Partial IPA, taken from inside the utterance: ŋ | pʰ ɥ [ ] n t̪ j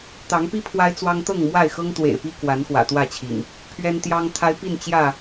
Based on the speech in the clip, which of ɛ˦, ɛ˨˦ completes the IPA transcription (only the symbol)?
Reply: ɛ˦